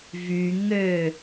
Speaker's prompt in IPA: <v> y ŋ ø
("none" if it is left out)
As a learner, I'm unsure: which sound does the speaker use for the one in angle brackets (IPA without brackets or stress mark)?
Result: v